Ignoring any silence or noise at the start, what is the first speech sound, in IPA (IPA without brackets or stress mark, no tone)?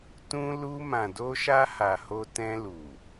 t